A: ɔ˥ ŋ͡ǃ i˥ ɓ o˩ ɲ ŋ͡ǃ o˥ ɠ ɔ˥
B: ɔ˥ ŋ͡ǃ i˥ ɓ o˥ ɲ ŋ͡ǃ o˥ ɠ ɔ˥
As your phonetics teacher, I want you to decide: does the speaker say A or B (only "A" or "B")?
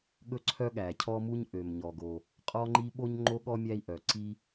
B